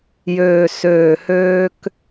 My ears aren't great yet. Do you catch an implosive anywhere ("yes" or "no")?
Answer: no